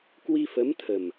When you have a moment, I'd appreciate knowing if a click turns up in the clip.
no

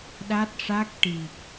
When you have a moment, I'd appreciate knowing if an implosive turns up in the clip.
yes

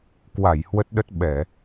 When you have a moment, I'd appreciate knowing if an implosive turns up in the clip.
yes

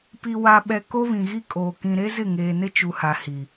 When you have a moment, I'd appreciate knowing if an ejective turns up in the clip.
yes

